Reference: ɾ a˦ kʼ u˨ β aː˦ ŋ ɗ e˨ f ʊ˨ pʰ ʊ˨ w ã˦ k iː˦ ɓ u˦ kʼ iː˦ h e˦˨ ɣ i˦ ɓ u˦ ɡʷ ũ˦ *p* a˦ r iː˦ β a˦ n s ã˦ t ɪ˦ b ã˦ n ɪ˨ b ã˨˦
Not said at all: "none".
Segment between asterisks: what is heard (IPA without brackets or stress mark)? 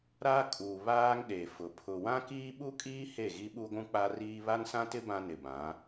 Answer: k͡p